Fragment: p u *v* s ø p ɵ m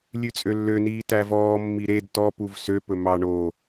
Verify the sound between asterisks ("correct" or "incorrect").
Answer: correct